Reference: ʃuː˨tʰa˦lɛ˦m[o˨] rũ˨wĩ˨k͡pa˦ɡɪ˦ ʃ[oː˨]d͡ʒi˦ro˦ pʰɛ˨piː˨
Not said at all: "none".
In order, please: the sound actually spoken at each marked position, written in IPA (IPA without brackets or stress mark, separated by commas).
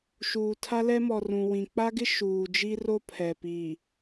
ɔ˨, uː˨